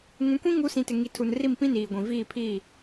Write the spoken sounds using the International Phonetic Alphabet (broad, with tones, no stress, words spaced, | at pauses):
ŋũ˨˦kʷĩ˦ ŋu˨˦sĩ˨tɪ˨ ŋi˨tʰu˨nri˦˨m pĩ˦niː˨ɡʷĩ˨ viː˦˨pʰiː˦˨